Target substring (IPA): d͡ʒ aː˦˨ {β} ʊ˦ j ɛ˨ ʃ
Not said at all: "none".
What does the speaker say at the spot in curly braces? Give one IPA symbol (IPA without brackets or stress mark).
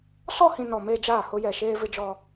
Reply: h